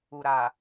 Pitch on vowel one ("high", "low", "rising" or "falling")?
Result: low